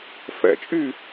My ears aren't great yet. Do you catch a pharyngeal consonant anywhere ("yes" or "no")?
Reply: no